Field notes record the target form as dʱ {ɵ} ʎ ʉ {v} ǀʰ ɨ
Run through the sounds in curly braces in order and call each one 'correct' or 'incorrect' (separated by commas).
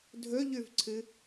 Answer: correct, correct